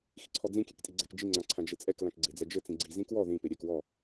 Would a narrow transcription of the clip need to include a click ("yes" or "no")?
yes